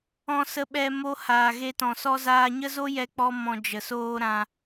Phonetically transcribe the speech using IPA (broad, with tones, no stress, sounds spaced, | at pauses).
ɔ̃˧ s ə˧ ɓ ɛ˧ m o˧ h aː˨ ɣ e˧ t ɔ̃˨ s ɔ˦ z aː˧ ɲ ə˦ z o˦ j ɛ˦ k͡p ɔ˦ m ɔ̃˧ d͡ʒ ə˨ s oː˦ ɾ ã˧